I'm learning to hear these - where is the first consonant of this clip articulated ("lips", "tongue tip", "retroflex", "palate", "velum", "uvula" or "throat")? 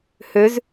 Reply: throat